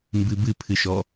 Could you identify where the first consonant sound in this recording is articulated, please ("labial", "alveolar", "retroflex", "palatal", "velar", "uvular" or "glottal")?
labial